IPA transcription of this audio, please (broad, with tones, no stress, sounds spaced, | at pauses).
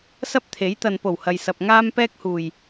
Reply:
s ɐ˥ p̚ t̪ʰ e˨˥ j t̪ ɐ˨ n p o˨˩ w h ɐ˨ j s ɐ˨ p̚ ŋ aː˧ m p ɛː˥ k̚ h uː˨˩ j